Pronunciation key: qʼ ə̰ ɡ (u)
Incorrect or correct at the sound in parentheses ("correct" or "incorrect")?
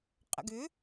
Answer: incorrect